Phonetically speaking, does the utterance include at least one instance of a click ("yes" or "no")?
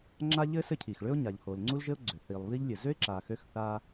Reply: yes